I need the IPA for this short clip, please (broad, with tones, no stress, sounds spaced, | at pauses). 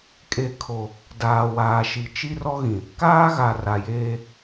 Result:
kʼ e˨ kʰ o˨ | d aː˨ w aː˨ ʃ i˨ t͡ʃ i˦ r ɔ˦ ɣ ĩ˨ | k aː˦ ɣ a˨ r a˨ j eː˦